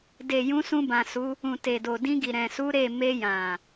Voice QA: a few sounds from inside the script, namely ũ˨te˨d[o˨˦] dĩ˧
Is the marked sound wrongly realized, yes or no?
yes